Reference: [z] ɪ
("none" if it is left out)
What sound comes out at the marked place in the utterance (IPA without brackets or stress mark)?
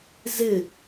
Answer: z